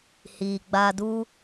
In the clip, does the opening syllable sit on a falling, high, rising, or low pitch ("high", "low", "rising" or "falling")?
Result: low